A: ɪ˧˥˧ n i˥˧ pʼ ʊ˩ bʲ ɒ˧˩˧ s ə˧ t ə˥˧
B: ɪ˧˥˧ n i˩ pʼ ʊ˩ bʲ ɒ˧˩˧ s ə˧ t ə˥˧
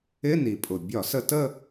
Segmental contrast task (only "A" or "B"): B